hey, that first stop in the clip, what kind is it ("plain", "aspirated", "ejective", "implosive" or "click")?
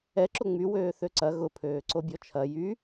click